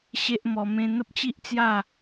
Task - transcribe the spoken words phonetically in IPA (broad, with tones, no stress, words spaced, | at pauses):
ɕe˦ʔmɔ˧ mẽ˧n̪ə˦p̚t͡ɕi˦ʔt͡sja˥˧